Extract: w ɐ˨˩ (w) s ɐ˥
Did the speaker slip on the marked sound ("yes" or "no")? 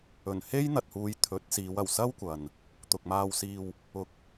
no